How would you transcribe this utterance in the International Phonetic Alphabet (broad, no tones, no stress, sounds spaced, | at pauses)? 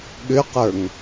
ɠ ʏ q ə˞ ŋ